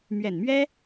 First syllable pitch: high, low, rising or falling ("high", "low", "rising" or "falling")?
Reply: low